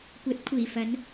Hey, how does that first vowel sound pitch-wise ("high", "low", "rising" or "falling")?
rising